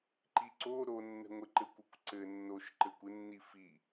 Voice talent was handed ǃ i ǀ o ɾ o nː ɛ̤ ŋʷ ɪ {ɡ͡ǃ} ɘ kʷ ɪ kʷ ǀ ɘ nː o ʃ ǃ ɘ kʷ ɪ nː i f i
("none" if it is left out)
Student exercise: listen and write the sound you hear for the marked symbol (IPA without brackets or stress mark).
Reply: ǃ